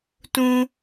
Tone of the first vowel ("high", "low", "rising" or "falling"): high